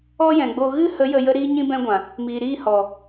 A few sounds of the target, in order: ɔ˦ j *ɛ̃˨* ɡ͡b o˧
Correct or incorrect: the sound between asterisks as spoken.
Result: correct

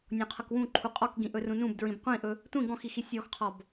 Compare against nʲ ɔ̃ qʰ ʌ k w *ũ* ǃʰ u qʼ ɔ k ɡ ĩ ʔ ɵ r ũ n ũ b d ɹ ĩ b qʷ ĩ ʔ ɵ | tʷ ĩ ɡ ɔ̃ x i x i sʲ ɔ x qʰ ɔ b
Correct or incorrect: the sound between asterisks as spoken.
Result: correct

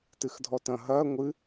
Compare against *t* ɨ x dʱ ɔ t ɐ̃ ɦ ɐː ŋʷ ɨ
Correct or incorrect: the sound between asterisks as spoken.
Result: correct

